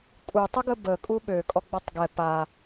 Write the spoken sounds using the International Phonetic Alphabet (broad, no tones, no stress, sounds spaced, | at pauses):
kʼ u tˤ ə ɡ ə b ə kʼ u ɓ ø kʼ ɔ ɡ͡b ɔ tˤ ɡ ɛ p a